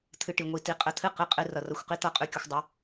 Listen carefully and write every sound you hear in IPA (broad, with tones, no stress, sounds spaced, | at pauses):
t̪ʰ ɨ˧ ʈ i˨ ŋʷ i˧ t i˧ qʼ ə˧ t̪ʰ ɨ˦ q ɨ˧ qʼ ɨ˧ r ʌ˨ r ʌ˨˦ xʷ q i˦ t̪ ʌ˦˨ qʼ ʉ˧ kʲ ə˨ xʷ dˤ ə˧